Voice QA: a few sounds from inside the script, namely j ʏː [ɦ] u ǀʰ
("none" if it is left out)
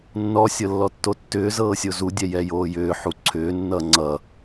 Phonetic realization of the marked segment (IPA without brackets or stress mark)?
ħ